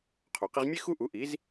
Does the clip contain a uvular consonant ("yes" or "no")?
yes